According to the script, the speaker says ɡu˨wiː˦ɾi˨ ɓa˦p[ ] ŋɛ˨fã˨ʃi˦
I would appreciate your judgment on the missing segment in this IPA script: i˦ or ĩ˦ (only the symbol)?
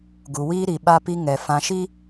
i˦